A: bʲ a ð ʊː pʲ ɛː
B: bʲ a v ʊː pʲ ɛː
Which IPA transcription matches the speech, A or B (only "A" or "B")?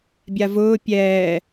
B